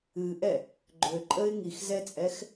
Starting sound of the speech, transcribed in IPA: ɨ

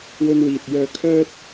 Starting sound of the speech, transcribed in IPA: w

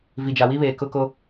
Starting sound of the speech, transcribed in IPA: v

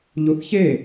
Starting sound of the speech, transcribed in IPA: ʎ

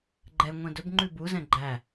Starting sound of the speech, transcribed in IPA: ɡ͡ǃ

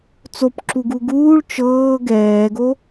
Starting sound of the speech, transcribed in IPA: t͡s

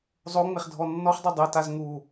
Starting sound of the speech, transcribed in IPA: zˤ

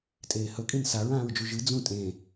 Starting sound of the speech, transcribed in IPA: tʼ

